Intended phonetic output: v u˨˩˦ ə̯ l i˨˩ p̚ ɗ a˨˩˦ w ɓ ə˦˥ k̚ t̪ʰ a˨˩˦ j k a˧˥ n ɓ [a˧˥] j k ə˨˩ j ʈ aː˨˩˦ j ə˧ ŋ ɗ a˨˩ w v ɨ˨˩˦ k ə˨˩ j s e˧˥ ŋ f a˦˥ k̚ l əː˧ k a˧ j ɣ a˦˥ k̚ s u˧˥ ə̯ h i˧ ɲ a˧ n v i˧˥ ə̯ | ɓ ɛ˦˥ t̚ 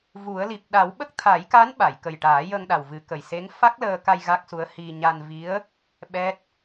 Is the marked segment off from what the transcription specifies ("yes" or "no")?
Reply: yes